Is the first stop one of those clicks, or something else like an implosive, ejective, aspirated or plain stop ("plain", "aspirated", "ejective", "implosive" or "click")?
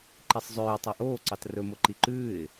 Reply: click